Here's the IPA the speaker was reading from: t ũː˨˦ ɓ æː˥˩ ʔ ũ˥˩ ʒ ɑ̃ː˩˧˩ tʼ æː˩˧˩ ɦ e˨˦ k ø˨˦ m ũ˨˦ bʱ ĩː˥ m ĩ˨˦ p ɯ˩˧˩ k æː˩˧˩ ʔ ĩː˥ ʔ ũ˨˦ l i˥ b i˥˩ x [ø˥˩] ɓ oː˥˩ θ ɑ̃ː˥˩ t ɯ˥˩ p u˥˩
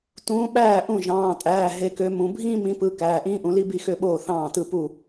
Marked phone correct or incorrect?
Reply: correct